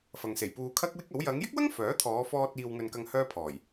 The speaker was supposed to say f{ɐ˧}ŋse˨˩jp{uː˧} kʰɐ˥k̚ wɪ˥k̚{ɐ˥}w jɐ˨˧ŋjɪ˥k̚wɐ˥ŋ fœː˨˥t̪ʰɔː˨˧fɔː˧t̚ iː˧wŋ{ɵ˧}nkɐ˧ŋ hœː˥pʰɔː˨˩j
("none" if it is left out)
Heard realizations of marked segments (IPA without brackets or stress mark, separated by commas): ɐ˨, uː˧, ɐ˨˥, ɵ˧